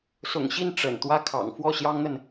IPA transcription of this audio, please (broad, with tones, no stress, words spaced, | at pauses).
sʊ̰˨˩ŋɕi˥˩n ʈ͡ʂə̰˨˩nt̪wä˥˩ kʰɑ̰˨˩ŋfwɔ˥˩ɕjɑ˥ŋn̪ə˨n